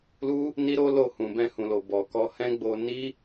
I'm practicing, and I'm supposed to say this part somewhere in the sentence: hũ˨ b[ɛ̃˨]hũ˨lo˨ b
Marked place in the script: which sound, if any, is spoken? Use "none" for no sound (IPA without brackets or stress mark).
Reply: ɛ̃˧